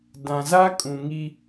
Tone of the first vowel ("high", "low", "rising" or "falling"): low